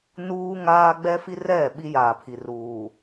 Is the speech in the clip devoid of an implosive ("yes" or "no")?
no